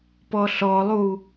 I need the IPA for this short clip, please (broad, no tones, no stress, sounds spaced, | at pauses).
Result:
p ɔ ɬ ɔ lˠ u